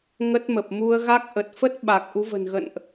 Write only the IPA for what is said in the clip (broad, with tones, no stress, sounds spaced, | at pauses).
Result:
ŋ ə˦˥ t̚ m ə˨˩ p̚ m u˧ ə̯ ɣ a˦˥ k̚ ʔ ə˨˩ t̚ f ə˦˥ t̚ ɓ a˨˩ k̚ ʔ u˨˦ v ə̤˨˩ n ɣ ə̰˧˨ n ʔ